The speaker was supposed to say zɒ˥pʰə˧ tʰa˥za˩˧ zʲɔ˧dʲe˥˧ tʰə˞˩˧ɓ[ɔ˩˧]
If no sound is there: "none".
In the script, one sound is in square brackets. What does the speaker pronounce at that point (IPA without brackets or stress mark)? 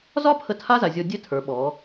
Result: ɔ˩˧